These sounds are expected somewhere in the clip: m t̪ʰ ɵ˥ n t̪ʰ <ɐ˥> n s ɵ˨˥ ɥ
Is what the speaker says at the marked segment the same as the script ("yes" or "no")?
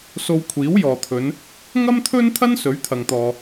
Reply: yes